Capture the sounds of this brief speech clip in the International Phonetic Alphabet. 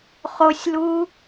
χosʲlu

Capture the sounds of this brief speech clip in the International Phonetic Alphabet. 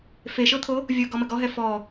feʃɤt̪ʰo | vʲɤɡɔmə ɡɔɦɛ fɔ

